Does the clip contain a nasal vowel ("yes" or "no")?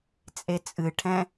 yes